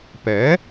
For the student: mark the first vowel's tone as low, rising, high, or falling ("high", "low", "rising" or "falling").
rising